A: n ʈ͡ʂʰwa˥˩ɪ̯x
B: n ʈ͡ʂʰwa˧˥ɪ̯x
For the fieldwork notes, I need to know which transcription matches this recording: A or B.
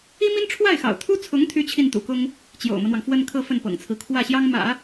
A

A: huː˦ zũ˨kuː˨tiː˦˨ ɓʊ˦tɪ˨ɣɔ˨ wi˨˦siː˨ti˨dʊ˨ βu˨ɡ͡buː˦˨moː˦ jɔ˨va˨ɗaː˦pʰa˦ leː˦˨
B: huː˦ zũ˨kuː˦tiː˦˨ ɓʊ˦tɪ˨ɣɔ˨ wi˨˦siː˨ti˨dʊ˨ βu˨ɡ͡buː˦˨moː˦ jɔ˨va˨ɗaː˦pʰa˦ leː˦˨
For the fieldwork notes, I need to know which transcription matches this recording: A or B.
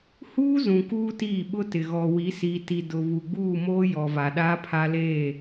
B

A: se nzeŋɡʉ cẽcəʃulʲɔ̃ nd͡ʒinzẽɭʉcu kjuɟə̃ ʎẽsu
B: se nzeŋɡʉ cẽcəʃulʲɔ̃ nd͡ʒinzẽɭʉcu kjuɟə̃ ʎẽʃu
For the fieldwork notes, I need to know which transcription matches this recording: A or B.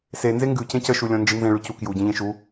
B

